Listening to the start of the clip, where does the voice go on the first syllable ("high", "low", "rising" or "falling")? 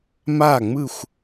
falling